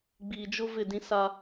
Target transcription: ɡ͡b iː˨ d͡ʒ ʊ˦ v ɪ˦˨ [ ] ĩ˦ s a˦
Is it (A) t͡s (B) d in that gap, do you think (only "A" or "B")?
B